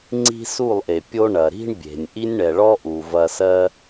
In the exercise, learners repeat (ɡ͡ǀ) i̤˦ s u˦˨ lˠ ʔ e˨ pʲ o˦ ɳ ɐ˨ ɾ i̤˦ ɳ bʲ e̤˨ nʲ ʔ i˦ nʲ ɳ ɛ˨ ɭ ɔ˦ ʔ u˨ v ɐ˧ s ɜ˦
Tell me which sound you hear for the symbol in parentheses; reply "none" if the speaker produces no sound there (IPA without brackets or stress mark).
ŋ͡ǀ